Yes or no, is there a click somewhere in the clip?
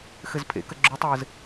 yes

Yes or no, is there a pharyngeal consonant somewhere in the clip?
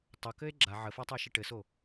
yes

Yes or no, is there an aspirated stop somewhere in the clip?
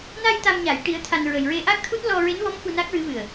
yes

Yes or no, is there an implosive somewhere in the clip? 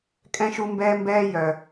no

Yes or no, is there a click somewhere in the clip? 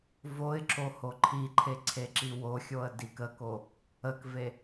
yes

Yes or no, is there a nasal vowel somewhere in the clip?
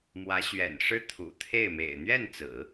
no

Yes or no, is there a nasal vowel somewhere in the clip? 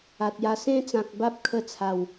yes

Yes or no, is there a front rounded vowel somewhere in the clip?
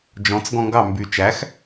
yes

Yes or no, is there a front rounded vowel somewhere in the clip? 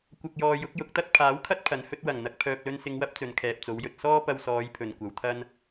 yes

